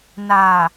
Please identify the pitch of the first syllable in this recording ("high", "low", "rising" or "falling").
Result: low